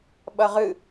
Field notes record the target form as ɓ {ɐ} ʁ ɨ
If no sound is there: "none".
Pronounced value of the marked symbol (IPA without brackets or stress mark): ɐ